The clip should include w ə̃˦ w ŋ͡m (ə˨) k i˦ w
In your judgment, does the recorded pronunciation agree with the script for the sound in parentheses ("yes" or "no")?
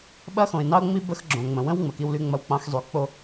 yes